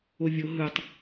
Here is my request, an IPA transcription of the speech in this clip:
ovʲo ɦɯtˤ

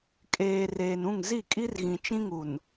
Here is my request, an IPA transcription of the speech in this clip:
kʼeː˨ reː˨nũ˦˨ŋ zi˦˨kʼi˦rɣĩ˨ t͡ʃĩ˦ŋu˨n

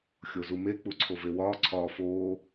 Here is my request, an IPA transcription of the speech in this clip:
xʲozume k͡puǀʰovewɒː ǀʰɒːfoː

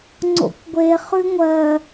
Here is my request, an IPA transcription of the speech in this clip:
ŋ͡ǀo̰kʷɡʷe χʉŋʷɜ

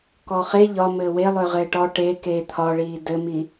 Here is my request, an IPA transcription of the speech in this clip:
kɔχe ʎɒ mɘːwelˠø ʁɘːʈɔ ʈe keːt̪ʰɒɭiː dɘmi

